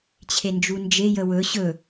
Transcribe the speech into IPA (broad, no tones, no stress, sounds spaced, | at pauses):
t͡ɕʰ e n d͡ʒ u n d͡ʒ e j ə w ɵ ɕ ɵ